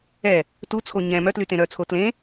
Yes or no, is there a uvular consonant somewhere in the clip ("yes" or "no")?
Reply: no